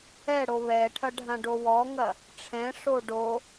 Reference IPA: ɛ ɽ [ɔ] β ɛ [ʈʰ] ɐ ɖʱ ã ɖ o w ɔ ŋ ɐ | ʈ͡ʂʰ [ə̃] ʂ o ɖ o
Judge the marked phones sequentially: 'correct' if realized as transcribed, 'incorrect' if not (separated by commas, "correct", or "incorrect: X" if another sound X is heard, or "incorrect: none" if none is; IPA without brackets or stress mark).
incorrect: o, correct, incorrect: ɛ̃